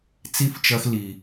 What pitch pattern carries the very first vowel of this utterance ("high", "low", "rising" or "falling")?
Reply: falling